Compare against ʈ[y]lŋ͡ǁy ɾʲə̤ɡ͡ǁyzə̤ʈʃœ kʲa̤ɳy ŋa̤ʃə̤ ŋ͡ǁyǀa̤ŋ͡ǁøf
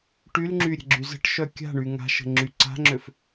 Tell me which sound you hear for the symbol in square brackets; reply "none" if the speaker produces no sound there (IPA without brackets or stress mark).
y